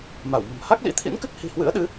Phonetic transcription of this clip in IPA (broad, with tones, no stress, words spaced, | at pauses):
ma˧˩w mə̤˨˩m ha˦˥k̚lḭ˧˥t̪ʰḭ˧˥nkɨ˦˥k̚ hi̤˨˩hwɨ̰˧˥ə̯ɗɨ˨˦